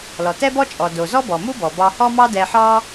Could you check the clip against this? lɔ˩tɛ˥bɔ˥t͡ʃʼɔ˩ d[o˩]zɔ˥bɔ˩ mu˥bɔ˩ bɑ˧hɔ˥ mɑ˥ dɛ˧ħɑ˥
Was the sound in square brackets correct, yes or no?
yes